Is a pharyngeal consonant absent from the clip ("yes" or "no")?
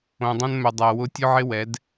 no